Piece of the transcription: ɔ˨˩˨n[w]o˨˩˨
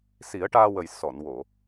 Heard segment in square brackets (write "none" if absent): w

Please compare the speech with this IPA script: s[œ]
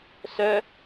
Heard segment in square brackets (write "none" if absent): œ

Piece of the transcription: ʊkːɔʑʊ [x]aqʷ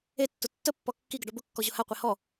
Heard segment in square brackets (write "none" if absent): h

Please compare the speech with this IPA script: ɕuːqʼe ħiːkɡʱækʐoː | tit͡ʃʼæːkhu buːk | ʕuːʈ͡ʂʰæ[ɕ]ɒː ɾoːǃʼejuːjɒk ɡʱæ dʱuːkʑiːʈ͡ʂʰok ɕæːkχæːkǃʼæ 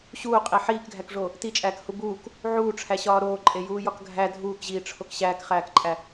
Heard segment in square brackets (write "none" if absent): ɕ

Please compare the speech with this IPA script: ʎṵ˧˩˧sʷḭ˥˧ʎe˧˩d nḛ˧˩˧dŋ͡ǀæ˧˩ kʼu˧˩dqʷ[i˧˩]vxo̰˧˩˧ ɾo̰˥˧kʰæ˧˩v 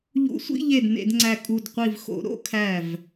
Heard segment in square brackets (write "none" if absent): i˧˩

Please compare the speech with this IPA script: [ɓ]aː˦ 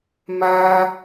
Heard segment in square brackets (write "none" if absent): m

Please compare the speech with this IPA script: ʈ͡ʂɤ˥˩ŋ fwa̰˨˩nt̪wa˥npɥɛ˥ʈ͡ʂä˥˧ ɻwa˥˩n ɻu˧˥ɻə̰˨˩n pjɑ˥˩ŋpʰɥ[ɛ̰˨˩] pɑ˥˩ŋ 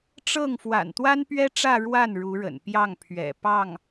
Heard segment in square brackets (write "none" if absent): ɛ̰˨˩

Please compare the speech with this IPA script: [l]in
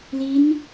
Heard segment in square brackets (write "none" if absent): l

